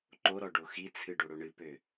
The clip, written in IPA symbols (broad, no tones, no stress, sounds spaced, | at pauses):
ǃ o ɾ ɔ ɖ o x i t͡sʰ ɨ ɖ o ɽ o ɳ ɨ p ø